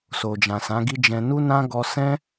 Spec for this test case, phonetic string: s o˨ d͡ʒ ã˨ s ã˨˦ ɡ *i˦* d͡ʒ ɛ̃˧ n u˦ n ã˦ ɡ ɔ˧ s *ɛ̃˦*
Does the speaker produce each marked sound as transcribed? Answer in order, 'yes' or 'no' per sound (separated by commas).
yes, yes